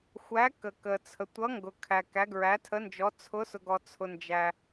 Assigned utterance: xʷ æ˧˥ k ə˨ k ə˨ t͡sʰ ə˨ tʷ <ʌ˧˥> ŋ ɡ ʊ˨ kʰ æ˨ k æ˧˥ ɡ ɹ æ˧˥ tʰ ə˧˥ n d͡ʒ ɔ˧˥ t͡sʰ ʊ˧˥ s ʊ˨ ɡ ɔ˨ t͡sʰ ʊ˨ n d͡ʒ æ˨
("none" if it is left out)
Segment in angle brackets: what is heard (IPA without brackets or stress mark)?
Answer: ʌ˧˥